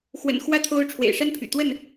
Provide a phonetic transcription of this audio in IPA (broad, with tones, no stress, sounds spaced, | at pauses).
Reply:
x w ə̰˨˩ n x w ä˥˨ t̪ʰ o˦ ʊ̯ ʈ͡ʂʰ w ḛ˨˩ ɪ̯ ʂ a˦ n pʰ y̰˨˩ t̪ w ə˥˨ n